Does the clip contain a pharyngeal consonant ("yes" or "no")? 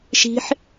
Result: yes